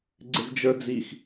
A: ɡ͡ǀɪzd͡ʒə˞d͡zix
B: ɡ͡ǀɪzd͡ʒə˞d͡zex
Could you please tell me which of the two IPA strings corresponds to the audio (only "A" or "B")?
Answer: A